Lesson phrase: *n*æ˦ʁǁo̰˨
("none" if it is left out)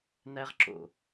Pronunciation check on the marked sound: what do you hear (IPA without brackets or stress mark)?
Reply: n